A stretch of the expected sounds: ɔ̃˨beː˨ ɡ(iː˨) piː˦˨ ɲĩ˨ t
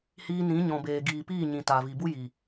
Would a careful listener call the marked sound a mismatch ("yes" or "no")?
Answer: no